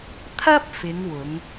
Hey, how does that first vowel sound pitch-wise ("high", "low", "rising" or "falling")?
high